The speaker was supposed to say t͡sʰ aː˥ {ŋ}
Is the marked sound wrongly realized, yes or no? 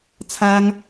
no